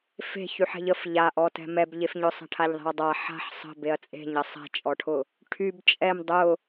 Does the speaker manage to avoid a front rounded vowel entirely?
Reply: no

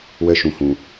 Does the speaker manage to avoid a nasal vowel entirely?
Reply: no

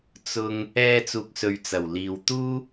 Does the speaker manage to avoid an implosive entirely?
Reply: yes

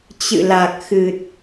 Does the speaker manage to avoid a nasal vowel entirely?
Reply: yes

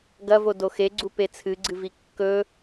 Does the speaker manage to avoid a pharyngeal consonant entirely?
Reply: yes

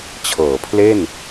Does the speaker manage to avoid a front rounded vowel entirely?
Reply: yes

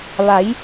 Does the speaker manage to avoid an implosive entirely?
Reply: yes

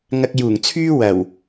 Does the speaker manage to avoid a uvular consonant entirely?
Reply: yes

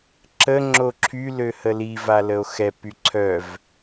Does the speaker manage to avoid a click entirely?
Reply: no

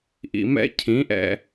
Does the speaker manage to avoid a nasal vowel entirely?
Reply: no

